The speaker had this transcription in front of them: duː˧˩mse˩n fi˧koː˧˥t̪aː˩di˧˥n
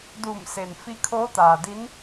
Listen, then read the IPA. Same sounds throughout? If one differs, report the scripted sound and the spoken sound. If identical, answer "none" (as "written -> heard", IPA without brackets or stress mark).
k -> kʰ